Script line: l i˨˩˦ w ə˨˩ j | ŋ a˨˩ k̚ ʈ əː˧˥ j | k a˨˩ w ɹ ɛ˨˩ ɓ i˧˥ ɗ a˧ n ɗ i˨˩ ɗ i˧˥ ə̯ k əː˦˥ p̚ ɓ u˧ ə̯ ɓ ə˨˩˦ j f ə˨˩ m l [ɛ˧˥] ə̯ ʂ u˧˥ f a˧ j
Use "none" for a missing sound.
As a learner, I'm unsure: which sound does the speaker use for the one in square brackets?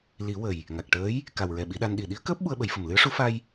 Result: ɨ˧˥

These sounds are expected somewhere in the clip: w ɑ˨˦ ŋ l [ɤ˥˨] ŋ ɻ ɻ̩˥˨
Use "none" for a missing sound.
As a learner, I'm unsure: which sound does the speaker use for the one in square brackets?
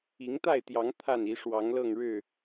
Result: ɤ˥˨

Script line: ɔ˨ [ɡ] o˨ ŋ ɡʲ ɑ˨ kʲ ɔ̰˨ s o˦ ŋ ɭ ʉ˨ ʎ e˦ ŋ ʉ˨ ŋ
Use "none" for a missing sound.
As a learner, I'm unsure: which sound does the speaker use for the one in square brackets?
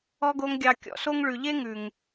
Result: ɡ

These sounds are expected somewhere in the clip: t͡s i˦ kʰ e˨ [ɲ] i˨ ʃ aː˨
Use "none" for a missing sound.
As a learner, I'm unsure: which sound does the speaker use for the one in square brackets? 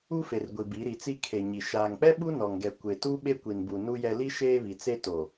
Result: ɲ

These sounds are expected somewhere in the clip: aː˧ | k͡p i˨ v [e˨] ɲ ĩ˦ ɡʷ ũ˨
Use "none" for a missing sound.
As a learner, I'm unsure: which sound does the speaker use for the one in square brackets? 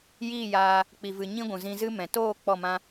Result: ɨ˨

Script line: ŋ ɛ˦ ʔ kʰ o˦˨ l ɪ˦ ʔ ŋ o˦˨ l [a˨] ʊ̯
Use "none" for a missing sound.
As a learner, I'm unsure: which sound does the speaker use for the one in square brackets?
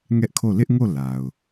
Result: a˨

